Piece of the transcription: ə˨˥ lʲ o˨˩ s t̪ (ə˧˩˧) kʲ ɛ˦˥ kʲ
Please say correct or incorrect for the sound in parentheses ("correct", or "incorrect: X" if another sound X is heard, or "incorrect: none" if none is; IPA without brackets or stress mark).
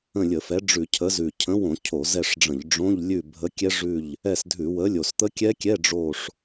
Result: incorrect: ə˦˥